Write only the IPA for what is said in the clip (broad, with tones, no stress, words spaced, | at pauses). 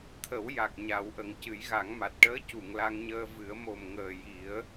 t̪ʰə˨˩˦wja˨˩k̚ ɲa˨˩˦w ʔə˨˩ŋcɨ˨˩˦jɣa˨˩˦ŋma˨˩t̚ ʈəː˧˥ cu˨˩˨ŋla˧ŋɲəː˧ vɨ˨˩˦ə̯ mo˨˩mŋəː˨˩ ji˨˩˦ə̯